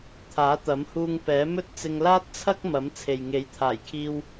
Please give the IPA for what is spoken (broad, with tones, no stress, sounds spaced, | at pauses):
t̪ʰ aː˨˥ t̪ ɐ˨˥ m h uː˧ ŋ p ɛː˨˥ m ɵ˥ t̚ t͡s ɪ˧ ŋ l aː˥ t̚ t͡sʰ ɐ˥ k̚ m ɐ˨˥ m t͡sʰ e˨ j ŋ e˨˥ j t̪ʰ aː˨˩ j kʰ iː˧ w